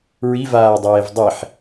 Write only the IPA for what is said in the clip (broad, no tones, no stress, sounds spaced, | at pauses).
ɹ i v aː dˤ eː v dˤ i ħ